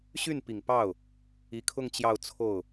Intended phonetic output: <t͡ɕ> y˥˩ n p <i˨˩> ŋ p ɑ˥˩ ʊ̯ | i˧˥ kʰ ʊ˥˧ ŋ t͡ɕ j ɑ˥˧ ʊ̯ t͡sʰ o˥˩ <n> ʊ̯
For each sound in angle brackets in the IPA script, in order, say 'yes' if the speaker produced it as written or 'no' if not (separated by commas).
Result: no, yes, no